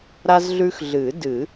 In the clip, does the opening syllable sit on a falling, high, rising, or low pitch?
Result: high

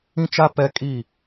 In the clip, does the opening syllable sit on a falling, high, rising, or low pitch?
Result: high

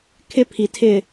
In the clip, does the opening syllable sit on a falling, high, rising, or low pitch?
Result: high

